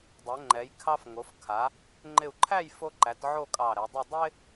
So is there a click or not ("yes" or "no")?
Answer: yes